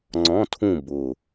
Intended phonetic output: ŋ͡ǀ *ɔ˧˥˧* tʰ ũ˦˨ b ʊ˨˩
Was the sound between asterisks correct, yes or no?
no